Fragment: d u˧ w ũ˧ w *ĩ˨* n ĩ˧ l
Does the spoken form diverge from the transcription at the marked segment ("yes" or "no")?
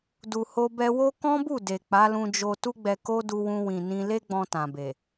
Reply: no